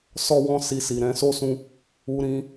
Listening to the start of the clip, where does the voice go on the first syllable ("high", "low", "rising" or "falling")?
high